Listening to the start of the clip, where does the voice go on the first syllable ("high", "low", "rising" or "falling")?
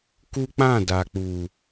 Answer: high